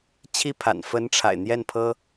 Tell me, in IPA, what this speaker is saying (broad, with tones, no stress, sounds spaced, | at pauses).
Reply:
t͡ɕʰ i˥ pʰ a̰˨˩ n f ə˧˥ n ʈ͡ʂʰ a̰˨˩ ɪ̯ n̪ j ɛ˥˩ n pʰ ɤ˥